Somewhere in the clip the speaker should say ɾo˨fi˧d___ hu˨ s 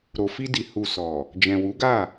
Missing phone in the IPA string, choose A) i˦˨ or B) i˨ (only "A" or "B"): B